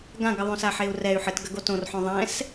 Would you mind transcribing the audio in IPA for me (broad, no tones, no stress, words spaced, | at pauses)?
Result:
ɡãɡɨðˤõsa ħeu̯rɛy̯ ħɘtɡɐɡo tõrħɔ̃ ðˤɛ̃s